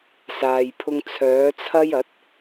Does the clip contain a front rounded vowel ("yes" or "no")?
yes